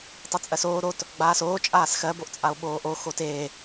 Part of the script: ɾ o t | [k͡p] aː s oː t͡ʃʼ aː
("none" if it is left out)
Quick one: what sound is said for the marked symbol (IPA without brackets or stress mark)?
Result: ɡ͡b